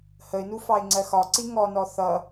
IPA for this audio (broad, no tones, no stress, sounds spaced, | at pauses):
h ə ɪ̯ n u f ɑ ɪ̯ ŋ͡ǀ ɜ x ɒ ǀ i ŋ ɔ n ɔ θ ʌ